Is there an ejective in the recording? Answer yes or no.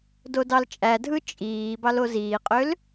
yes